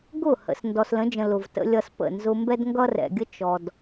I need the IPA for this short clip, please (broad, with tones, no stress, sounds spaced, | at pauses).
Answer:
ɡ ʊ˦˨ h ə̰˨ s n d ɔ˨ s l ə̃˨˦ d͡ʒ ə̃˨ l ʊ˨ v t ə̰˦ lʲ ʌ˦ s p ə̰˦˨ n z ʊ˦ m b ɛ˦ d ŋ ɡ ʌ˦ r ɛ̰˨ ɡʲ ə˦ t͡ʃ ɔ˨ d